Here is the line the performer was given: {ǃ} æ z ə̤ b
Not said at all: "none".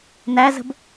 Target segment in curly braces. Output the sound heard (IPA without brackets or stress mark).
n̪